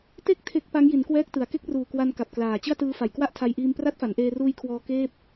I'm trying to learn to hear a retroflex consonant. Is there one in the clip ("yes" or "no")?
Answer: no